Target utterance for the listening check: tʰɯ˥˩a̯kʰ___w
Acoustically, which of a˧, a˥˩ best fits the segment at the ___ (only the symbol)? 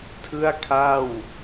a˥˩